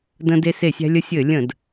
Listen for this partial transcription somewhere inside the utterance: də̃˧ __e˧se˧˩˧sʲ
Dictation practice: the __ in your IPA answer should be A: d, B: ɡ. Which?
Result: A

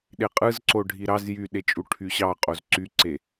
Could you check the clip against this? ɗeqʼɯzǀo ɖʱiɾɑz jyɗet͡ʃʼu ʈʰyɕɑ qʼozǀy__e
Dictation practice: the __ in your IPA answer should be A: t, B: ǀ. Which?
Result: B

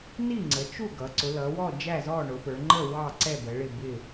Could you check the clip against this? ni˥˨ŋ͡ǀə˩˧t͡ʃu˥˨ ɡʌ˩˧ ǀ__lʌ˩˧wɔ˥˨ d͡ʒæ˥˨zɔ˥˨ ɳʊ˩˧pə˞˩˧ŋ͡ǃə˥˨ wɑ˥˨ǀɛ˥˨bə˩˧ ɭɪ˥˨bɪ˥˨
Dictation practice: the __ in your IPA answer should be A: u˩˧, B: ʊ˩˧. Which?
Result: B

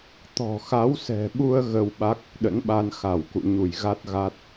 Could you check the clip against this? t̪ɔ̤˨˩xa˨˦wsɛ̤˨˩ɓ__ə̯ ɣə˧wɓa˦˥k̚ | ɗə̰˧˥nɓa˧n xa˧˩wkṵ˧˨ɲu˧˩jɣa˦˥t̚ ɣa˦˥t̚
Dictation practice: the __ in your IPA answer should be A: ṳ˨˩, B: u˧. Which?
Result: B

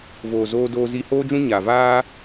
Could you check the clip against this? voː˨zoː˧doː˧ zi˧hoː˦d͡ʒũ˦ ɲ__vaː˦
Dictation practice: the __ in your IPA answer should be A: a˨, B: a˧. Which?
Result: A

